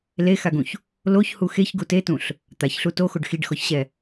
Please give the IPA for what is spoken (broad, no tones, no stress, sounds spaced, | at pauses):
l e x a ɡ ũ ç | l o ç h u x e ç ɡ u t e t ũ ɬ | t̪ a ç ɬ u t o x o ɖ x i ɖ x ɔ ç ɕ ɛ